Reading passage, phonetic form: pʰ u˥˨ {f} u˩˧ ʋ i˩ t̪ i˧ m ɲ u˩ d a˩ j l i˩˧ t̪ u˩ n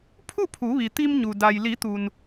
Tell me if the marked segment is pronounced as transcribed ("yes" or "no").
no